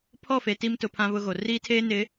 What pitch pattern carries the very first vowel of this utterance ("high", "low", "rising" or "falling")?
falling